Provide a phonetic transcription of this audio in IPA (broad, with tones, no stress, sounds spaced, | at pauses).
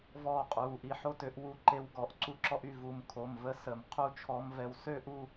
v ɔː˥˧ qʼ uː˩˧˩ ʔ i˧ ħ o˥ t ø˧˥ ʔ w u˧˥ ǃ e˧ w ɡ ɔ˧˩˧ ʔ ǀ u˥ ǁ ɔ˥ ʔ y˧ v u˩˧˩ m kʰ o˩˧˩ m v ə˧˥ s ə˧˩˧ m qʰ u˥ t͡ʃʰ ɔ˧˥ m v ɛ˧ w s ø˥ ʔ u˥˧